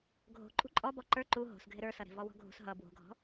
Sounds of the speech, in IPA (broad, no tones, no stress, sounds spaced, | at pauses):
ɡʱ o̤ ǃʼ ṳ ǃʼ ɔ b ɔ ǃ ə˞ ǃ u ɦ o̤ s ɡʱ ɪ ɾ ə˞ s ʌ ɾ e̤ v ɔ w ɔ̤ ɡʱ ṳ s ɦ ʌ b w o̤ ɡʱ ɔ̤